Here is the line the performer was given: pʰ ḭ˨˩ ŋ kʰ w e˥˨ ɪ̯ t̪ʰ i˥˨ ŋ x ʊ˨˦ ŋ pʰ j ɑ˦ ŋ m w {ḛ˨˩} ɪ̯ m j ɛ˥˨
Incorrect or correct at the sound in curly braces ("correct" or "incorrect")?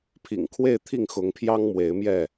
incorrect